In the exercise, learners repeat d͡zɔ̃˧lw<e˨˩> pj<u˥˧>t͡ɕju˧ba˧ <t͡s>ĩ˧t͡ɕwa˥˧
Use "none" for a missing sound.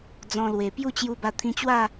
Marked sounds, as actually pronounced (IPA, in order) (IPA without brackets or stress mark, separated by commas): e˨˩, u˥˧, t̪ʰ